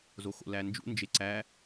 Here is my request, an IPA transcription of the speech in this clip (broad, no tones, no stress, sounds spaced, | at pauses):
z o x o̰ l æ n d͡ʒ ṵ n d͡ʒ e ǀ æ